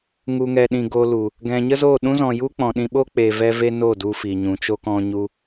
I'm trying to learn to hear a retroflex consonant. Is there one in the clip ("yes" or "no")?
no